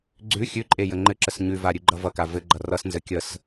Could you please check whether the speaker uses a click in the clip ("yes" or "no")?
yes